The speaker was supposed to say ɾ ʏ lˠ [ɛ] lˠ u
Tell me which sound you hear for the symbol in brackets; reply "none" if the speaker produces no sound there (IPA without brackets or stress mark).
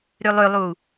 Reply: ʏ